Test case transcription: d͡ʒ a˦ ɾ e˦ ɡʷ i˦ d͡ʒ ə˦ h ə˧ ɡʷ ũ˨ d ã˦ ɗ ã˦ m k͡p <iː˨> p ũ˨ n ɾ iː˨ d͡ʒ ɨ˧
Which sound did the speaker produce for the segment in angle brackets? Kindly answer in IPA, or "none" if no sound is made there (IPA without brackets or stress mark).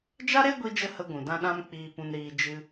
iː˨